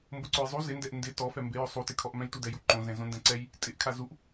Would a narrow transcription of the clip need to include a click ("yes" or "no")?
yes